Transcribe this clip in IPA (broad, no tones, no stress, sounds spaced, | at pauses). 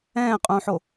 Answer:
ɛ̃ː qʼ ũː ħ o